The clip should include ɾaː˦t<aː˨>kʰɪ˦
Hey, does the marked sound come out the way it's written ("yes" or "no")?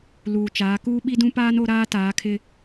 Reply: no